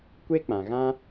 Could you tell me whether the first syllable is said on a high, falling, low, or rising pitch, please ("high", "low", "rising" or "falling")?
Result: high